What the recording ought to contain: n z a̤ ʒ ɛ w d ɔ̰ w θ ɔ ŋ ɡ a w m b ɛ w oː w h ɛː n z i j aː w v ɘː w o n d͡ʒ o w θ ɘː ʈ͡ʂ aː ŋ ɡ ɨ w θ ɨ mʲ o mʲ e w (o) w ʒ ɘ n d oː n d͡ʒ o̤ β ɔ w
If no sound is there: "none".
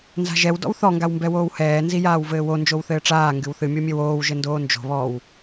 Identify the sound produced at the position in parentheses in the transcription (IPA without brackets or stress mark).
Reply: oː